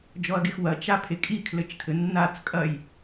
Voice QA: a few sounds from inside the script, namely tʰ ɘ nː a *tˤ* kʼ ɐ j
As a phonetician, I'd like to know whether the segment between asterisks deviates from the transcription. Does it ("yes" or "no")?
yes